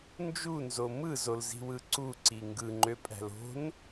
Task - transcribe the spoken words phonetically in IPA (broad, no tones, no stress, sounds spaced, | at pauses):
n d͡ʒ u n z o m ɯ z o l z i̤ w ɯ ǀ u ǀ i ŋ ɡ ɯ ŋ͡ǃ ø pʼ æ̤ l o̤ n